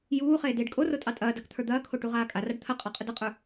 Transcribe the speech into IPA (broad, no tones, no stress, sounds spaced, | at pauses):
j uː χ eː d eː ɖ kʼ o r o tʼ ɑ tʼ ɐː d a k t̪ʰ ə˞ d̪ ɐː kʰ o ʈ u ʁ aː kʼ a r a ɖ t̪ʰ ɐ qʼ ɑ qʼ ə d ɐ qʼ ə˞